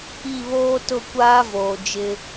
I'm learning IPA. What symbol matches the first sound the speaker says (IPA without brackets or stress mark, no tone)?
i